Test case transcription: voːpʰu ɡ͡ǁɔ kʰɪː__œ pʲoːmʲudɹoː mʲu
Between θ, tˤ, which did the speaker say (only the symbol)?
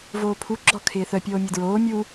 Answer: θ